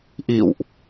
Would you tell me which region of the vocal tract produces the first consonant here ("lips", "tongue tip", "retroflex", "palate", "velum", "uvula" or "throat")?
throat